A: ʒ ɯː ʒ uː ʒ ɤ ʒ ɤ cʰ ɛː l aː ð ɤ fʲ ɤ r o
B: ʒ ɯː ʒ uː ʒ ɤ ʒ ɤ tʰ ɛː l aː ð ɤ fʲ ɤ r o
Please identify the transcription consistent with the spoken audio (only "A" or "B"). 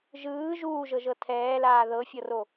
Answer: B